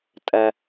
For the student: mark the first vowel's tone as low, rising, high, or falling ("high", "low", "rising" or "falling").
low